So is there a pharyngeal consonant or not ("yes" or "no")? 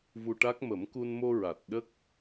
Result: no